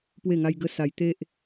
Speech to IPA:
pwe˥˧ŋa˦jɡə˦ sa˧j t̪e˦ʔ

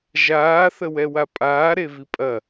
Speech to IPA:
ʒaːθə wɛwapʼaː ɾevipʼɐ

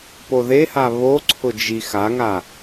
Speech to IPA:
poðeha βoǀʰʊ d͡ʒi xaŋa

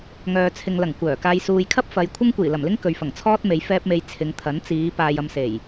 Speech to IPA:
ŋœː˨t͡sʰɪ˨ŋlɐ˨˩ŋ kʷœː˨˩ kaː˨jsuː˨jkʰɐ˥p̚ fɐ˨˧j kʷʰɐ˥ŋkʷiː˨˩lɐ˨˩mlɪ˥ŋ kɵ˨ɥfɐ˨˩ŋt͡sʰɔː˥t̚me˨˧j fɛː˧p̚me˨j t͡sʰɪ˨˧ŋt̪ʰɐ˨˥n t͡siː˨˧ paː˨jɐ˨m se˨˩j

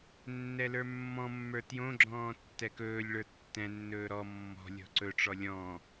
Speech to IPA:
nːɛlə˞mːɔ̃mːə˞ tjõɡ͡ǁɔ̃ː tːɛkɵːlʲɭə˞ tːɛ̃nːɵː ɾɔ mːɔ̤ lʲɔ̤ǀɵʈ͡ʂɔ lʲɔ̃

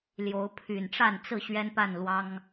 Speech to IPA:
ljo˨˦ʊ̯pʰy˨˩nʈ͡ʂa˥˨nt͡sɹ̩˥˨ ɕɥɛ˦npa˥˨n lwɑ˦ŋ

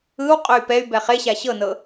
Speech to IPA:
ɯwqʼoy̯ pɛy̯ bɛχeɕa ɕɤnɤ

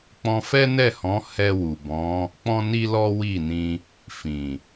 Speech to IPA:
k͡pɔ̃˧fɛ˦nɛ˦˨hɔ̃˨˦ hɛ˧wu˨bɔ̃˨˦ | k͡pɔ̃˦ ni˦lɔ˦wi˦˨nĩ˧ | fĩ˨

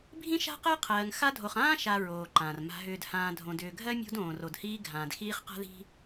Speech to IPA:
bʱĩ˥ʃa̤˥qɜ˥ qʰɜː˨ŋ xa˦dʱo˨χãː˥ ʃa˨ɹoː˩ ǃã˩r ma̤˨ɦʏː˨dhãː˨ dʱõ˨dʏː˨ɡʱɜ˥mʲo̤˦d õː˨r o˨dhiː˦ɡʱãː˨d xiː˦χqa̤˥ði̤˥

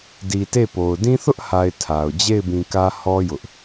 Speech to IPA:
di˨te˦˨po˨ʊ̯ dĩ˦θʊ˦ʔha˨ɪ̯ tʰa˨ʊ̯ d͡ʑe˦˨ɪ̯bĩ˨kä˦hɔ˦ jʊ˦ʔ

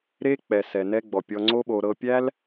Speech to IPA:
ɾe˦ k͡pɛ˨sɛ˨nɛ˧ɡ͡bɔ˨ pʲɔ˧ŋ͡ǀo˦ɓo˧ ɾɤ˧pʲæ˦l

